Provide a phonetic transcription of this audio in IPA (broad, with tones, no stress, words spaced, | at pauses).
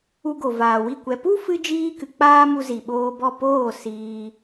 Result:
u˧ɡo˨vaː˨ wi˦˨kʷɛ˧ pu˦fɨ˧d͡ʒiː˧ kɨ˨k͡paː˦mu˧ zi˨ ɓoː˧bɔ˦˨ poː˦˨ siː˧